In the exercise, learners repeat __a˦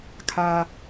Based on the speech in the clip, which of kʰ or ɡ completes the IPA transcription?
kʰ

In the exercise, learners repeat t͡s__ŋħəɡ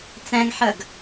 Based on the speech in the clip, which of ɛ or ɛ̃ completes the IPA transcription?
ɛ̃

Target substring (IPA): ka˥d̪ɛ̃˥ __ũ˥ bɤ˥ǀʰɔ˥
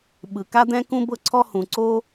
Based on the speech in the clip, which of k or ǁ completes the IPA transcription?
k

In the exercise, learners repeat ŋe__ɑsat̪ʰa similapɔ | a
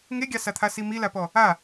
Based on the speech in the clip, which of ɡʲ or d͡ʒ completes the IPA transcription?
ɡʲ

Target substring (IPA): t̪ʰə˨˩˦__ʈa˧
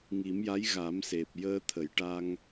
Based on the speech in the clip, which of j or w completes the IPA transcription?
j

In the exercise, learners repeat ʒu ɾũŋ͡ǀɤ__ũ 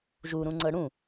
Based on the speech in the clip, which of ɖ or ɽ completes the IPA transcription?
ɽ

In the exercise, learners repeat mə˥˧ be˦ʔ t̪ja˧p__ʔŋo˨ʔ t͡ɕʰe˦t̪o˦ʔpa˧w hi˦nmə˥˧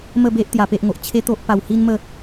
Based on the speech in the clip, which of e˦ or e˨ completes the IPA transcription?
e˦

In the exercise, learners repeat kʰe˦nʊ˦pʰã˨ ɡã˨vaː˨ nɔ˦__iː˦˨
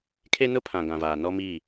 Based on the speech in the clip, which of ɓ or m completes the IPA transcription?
m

